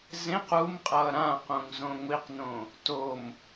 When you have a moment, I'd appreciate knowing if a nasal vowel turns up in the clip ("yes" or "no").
yes